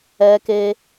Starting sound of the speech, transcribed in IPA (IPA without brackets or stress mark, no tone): ɛ